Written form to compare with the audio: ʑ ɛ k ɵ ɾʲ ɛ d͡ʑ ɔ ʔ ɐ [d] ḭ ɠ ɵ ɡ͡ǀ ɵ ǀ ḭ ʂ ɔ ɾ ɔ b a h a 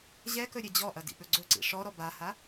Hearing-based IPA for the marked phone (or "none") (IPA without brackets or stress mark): d